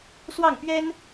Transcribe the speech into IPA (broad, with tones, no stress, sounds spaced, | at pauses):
s w ɑ˥˩ ŋ p ɥ ɛ˥ n